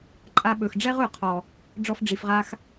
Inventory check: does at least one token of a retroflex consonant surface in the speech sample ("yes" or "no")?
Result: yes